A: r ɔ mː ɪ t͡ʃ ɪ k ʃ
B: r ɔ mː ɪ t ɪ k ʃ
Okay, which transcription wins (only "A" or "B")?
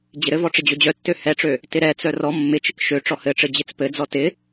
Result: A